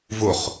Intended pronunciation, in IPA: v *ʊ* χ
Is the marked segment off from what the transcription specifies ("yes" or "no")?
no